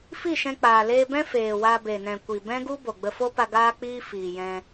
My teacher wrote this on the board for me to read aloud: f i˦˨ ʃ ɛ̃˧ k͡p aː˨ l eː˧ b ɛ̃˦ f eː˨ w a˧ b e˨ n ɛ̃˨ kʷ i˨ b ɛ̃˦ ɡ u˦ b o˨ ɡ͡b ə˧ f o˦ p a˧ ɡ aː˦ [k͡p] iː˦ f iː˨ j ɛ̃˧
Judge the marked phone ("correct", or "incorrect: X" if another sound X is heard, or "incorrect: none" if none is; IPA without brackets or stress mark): correct